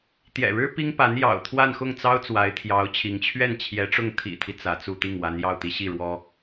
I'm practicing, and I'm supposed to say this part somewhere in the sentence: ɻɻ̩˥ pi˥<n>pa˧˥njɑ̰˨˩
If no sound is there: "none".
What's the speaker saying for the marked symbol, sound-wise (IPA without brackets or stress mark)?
ŋ